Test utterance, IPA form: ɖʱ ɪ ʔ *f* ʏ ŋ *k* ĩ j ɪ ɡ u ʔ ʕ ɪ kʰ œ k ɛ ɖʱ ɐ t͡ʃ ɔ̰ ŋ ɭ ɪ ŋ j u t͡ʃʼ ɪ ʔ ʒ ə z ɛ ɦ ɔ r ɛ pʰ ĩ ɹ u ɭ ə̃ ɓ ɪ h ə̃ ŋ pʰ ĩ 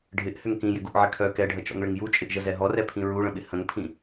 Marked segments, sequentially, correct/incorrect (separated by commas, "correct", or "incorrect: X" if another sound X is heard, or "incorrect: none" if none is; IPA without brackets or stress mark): incorrect: h, correct